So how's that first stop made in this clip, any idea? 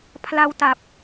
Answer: aspirated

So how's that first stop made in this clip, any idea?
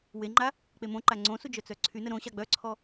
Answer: click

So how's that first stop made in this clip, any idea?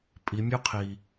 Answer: ejective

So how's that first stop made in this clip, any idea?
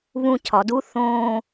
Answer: aspirated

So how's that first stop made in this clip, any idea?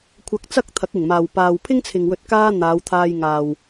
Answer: aspirated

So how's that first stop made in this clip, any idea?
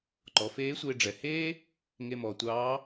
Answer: click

